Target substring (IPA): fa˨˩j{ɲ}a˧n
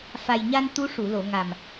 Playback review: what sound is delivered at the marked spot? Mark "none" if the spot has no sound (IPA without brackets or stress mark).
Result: ɲ